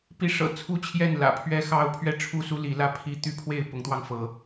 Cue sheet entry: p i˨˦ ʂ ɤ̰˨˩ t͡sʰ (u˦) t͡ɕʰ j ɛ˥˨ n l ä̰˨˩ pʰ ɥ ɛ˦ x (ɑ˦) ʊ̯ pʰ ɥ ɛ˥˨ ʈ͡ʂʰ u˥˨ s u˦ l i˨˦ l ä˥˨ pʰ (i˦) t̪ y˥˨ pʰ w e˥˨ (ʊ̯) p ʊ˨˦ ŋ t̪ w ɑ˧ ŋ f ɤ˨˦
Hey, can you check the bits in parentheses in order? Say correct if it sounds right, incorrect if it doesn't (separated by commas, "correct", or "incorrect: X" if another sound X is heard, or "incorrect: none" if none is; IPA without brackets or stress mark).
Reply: correct, correct, correct, incorrect: ɪ̯